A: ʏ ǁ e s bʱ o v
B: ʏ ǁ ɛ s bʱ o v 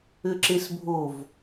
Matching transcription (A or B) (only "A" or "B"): A